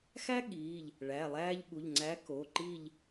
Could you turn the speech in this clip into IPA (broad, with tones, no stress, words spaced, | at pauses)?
xæ˦ ɠiː˩˧˩ʎ | ɭæ˩˧˩lˠæː˦ʎɠu˩˧˩ʎ ŋ͡ǀæ˨˥ ko˩˧˩ǃi˦˨ʎ